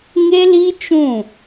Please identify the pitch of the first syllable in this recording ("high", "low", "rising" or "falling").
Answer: high